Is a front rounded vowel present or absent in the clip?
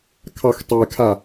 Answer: absent